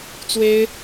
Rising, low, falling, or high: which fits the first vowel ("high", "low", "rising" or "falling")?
high